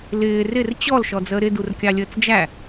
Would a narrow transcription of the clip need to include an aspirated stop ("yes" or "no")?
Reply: no